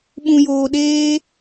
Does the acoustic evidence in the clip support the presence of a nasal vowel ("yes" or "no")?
yes